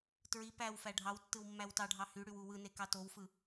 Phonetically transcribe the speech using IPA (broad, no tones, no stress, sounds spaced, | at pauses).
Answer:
t ɹ i p æ w f æ ɖʱ ɑ w tː ɯ w mː æ w t ɑ ɖʱ ɑ h y ɽ y w u w ɯ n e k ɑ t o w f ɯ